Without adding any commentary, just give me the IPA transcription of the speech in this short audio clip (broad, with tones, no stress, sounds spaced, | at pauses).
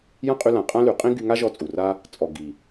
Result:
j ã˦ qʼ y˧ l ã˨ qʼ ã˦ l y˨ qʼ ĩ˦ ɡ y˧ ŋ a˦ ʒ ɔ˧ t͡sʼ u˨ r a˦ | t͡sʼ ɔ˨ ɡ i˨